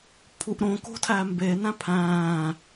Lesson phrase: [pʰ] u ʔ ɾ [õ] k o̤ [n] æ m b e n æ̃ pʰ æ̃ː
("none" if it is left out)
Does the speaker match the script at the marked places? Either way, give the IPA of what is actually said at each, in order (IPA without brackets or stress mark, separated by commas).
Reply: pʰ, õ, tʰ